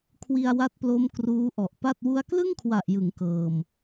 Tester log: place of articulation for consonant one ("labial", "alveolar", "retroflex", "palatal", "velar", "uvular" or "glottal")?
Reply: velar